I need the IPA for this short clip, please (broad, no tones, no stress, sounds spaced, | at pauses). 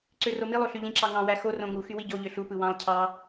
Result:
ǀ ø r o m i lˠ o ɬ y ʎ ĩ ǁ ɑ ŋ ɑ̃ w æ x o r õ ŋ u x y w i ɟ o ʎ ø ɬ u p ɯ w ɑ̃ lˠ cʰ ɑ